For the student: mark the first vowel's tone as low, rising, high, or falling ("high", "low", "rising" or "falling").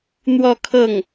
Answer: falling